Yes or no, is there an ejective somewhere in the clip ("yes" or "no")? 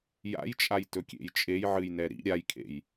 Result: yes